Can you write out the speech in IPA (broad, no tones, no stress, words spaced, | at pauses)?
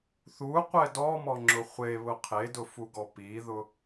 θuqʷɛ dɔmɔŋ͡ǁʊ χʷeβʊ qʰedʊfuɡɔ piðʊ